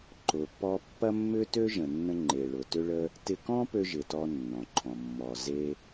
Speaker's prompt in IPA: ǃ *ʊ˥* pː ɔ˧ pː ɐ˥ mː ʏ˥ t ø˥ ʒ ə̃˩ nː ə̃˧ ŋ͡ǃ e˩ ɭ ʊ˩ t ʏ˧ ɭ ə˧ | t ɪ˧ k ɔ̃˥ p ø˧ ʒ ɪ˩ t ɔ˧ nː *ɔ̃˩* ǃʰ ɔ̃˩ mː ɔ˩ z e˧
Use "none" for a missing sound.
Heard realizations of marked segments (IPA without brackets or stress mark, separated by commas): ʊ˩, ɔ̃˩